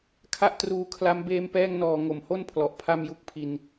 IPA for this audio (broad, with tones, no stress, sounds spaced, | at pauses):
kʰ a˥˩ ʔ t r uː˧ kʰ l a˦˥ m b eː˧ m p ɛː˧ ŋ n ɔː˨˩ ŋ o˨˩ m h o˥˩ n pʰ l ɔ˨˩ ʔ pʰ a˥˩ m j u˦˥ k̚ pʰ i˧ n